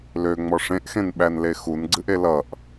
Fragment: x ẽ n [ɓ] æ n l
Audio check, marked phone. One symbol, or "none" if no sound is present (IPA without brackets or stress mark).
ɓ